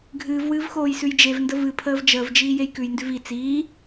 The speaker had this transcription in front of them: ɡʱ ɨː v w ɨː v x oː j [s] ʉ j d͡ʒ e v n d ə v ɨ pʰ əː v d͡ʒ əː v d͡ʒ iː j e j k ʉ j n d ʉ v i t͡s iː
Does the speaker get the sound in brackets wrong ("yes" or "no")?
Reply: no